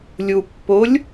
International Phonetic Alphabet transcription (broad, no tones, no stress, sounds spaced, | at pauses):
lʲ u pː o lʲ